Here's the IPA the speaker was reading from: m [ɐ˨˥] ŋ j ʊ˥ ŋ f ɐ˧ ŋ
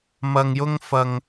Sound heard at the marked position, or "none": ɐ˧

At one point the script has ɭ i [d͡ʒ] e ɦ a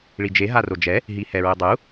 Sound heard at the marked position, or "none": d͡ʒ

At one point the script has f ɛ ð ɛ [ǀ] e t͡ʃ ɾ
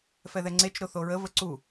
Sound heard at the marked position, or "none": ŋ͡ǀ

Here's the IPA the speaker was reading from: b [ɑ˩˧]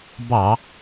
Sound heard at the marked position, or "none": ɑ˧˩˧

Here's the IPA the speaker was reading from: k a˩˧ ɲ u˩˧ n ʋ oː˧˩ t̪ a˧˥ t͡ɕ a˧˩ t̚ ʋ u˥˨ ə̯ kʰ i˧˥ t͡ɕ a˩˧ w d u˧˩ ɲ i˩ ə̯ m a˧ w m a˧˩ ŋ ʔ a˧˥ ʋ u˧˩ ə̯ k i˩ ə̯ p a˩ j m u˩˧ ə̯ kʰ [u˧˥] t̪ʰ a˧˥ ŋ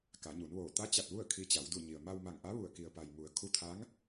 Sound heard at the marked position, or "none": u˧˥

